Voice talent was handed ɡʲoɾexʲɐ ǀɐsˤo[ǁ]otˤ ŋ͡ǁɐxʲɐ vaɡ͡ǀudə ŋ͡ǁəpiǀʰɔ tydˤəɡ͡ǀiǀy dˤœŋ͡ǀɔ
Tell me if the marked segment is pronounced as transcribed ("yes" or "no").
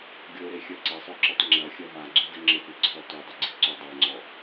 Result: yes